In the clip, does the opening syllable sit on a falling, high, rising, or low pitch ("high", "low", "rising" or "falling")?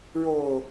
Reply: low